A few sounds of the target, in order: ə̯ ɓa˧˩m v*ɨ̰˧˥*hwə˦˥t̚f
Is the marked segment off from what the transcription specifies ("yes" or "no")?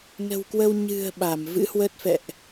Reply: no